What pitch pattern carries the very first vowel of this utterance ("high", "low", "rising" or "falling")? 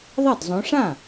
falling